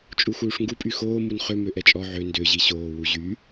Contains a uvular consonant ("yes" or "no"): yes